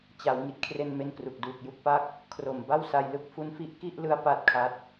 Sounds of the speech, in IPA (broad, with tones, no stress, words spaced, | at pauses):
t͡ɕa˩˦w ŋi˨˩t̚ kʰre˧nme˧n kru˨˩k̚duː˨˩k̚ju˥˩k̚pa˥˩k̚ | kʰro˨˩m ba˥˩wsa˧jlɯ˥˩k̚ fu˦˥nfi˦˥ʔ ki˥˩ʔlɯ˦˥a̯ pa˦˥t̚kʰa˦˥t̚